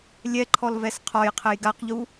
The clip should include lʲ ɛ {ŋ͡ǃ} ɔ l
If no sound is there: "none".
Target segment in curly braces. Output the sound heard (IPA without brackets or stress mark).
ǃʰ